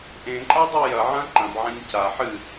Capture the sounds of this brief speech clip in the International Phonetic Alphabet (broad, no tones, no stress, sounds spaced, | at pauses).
ʔ ẽ ǃʼ a dˤ u j ɐ ʕ ɐ̃ ǃ ɐ̃ b ʕ ã ɲ c a ħ ɨ